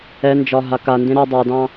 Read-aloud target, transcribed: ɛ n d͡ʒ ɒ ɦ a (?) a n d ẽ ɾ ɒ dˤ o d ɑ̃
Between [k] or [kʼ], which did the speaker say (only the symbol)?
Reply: k